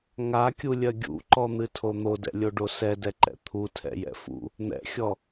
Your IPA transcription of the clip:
ŋ a kʲ u lʲ ɜ ɡʲ ṵ ǃ ɔ n̪ ɨ tʰ o n̪ o d ɛ̰ lʲ o ɖ o s ɛ d ɛ ǃ ɛ̰ t̪ʰ u tʰ ɛ̰ j ɛ̰ f ṵ | n̪ ɛ̰ xʲ ɔ

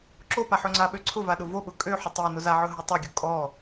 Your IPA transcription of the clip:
ǁ o p a ħ ɵ ŋ͡ǀ a ɓ ø ǀʰ ʊ v a ɗ ʊ v o ɓ ʊ kʼ ø ħ ʊ tˤ e n ʊ z a ʕ ɵ ɦ o tˤ o ɡʲ ʊ kʼ ɔ

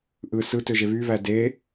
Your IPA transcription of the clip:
ʔ ɯ s ɯ t ø ʒ e β y β æ d e

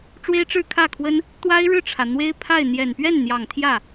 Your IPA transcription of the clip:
ʈ͡ʂ w e˥ ɪ̯ ʈ͡ʂ ɻ̩˥˧ kʰ ä˥˩ kʰ w ə˥ n | t̪ w a˥ ɪ̯ ɻ ɻ̩˥˩ ʈ͡ʂʰ ä˩ n̪ w e˥ ɪ̯ pʰ a˥˩ ɪ̯ n̪ j ɛ˨˩ n p ɥ ɛ˥˩ n n̪ j ɑ˨˩ ŋ t̪ʰ j ä˥˩

